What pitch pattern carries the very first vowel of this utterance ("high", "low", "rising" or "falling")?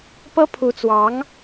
high